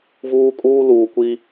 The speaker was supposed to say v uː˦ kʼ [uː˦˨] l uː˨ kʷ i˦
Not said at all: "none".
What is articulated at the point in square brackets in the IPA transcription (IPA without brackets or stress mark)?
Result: uː˦